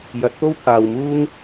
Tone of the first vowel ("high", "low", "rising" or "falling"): rising